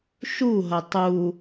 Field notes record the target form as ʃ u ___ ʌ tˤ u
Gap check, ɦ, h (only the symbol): ɦ